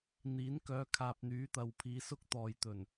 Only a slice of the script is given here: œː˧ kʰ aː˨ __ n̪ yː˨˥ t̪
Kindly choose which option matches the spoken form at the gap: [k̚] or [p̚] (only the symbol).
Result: p̚